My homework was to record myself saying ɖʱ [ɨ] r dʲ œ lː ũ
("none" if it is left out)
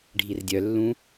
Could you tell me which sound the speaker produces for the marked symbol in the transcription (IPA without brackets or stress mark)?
i